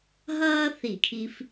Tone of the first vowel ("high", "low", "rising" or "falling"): high